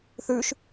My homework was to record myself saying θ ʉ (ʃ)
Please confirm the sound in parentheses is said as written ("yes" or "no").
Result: yes